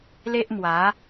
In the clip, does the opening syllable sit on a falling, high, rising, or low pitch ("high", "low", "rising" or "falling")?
high